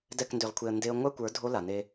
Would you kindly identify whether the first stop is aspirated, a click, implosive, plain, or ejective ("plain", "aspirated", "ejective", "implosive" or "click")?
plain